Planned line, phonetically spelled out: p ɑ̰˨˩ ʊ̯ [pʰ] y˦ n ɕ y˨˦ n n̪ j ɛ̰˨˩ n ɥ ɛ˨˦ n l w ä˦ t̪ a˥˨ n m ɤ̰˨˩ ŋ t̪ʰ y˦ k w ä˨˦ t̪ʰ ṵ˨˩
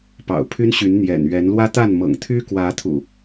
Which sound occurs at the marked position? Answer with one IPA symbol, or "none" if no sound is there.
pʰ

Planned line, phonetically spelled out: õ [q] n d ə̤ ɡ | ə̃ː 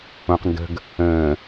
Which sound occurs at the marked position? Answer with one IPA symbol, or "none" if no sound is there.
q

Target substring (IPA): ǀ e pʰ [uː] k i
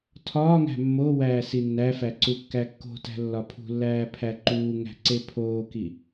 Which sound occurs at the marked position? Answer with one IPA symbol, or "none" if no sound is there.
oː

